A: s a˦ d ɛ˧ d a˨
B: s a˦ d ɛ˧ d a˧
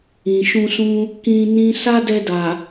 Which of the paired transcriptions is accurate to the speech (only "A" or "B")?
A